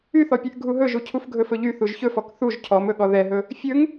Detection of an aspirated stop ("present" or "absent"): present